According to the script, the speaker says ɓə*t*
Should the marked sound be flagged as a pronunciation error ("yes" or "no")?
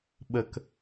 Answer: yes